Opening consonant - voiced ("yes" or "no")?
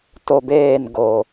no